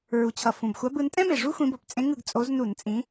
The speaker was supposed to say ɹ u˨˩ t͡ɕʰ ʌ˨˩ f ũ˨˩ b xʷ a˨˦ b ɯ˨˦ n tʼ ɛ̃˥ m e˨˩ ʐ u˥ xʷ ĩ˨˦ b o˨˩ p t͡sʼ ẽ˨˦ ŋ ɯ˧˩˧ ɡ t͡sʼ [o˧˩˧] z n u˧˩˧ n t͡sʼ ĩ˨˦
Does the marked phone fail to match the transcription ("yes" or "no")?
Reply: yes